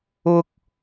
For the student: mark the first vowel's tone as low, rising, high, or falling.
high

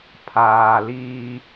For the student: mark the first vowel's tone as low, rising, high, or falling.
low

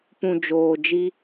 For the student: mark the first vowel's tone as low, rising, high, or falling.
low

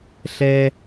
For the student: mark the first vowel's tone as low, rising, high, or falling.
high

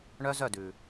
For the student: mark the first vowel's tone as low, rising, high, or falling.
high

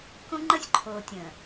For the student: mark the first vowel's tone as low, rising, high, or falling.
high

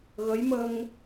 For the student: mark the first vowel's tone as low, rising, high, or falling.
rising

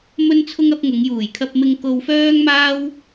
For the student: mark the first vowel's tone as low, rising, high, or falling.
high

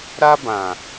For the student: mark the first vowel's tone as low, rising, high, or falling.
high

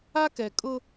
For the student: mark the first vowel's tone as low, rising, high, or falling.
high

